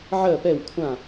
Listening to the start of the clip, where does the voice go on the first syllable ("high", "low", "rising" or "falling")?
falling